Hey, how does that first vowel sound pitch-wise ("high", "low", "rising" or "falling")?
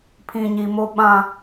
low